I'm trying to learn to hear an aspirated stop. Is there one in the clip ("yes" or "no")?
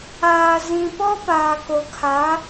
yes